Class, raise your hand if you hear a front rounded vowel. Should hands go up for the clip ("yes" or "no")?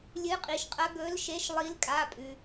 no